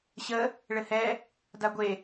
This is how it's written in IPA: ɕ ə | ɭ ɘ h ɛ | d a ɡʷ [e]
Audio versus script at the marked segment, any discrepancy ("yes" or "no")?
no